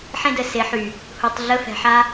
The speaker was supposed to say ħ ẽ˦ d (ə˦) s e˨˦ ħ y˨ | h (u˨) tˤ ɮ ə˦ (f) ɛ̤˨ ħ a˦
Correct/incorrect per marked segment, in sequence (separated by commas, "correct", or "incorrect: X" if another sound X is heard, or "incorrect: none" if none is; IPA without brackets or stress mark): incorrect: ə˨, correct, correct